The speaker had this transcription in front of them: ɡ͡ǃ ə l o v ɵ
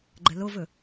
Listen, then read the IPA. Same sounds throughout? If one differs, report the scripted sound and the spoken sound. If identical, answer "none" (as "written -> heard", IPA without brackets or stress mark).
none